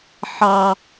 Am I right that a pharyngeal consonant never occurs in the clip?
no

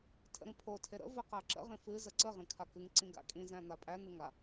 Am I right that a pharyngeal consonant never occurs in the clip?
yes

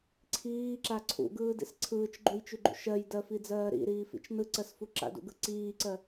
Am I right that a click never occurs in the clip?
no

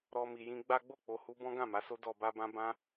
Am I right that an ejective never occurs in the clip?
yes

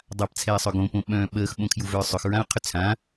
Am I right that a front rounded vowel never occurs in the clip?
no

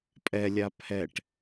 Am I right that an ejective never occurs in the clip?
no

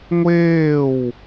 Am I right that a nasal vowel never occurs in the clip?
yes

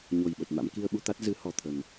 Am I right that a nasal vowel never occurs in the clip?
yes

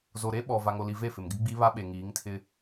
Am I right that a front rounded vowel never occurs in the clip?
yes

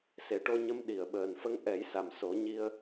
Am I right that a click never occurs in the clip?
yes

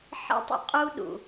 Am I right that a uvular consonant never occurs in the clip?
no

